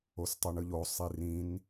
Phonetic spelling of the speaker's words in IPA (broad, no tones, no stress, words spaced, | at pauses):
ostˤoɳɯʎo sˤirĩn